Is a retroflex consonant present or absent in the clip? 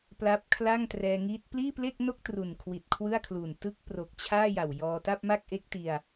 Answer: absent